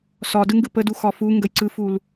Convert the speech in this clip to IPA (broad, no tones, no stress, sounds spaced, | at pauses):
s ɒ d ɯ ŋ ɡ ɯ p ə d u x ɒ f u ŋ ɡ ə j ǀ ɯ f u l